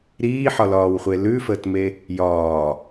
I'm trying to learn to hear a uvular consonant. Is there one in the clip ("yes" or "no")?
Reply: yes